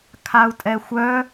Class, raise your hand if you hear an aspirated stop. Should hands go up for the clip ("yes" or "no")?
yes